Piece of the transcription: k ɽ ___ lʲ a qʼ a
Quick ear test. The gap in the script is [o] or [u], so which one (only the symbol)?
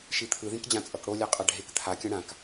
o